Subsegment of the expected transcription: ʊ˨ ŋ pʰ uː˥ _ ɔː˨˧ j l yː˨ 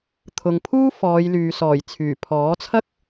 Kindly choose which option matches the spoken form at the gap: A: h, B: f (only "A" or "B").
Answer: B